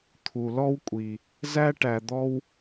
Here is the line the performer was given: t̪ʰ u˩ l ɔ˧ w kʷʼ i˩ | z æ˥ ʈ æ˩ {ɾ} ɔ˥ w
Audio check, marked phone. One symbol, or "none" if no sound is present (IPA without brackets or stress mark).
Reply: d̪